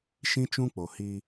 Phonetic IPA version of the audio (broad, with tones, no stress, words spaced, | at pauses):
ʃĩ˦t͡ʃũ˦k͡po˨ hi˦